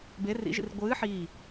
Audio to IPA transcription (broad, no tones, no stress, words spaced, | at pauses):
be rḭʒḭr ɡʷɨː ħi